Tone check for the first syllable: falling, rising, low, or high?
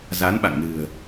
rising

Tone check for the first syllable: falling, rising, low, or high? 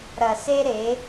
low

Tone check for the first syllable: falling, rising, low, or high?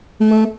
high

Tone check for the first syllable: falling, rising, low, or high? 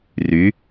rising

